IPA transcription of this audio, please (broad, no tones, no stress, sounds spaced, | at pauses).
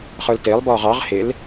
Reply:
χ ə˞ l t ɪː lˠ b ɔː ʁ ɑ ʁ h ɪ l